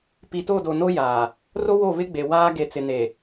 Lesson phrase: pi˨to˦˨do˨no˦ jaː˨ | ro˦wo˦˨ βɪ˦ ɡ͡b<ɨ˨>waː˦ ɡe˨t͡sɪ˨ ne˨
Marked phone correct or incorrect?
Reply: incorrect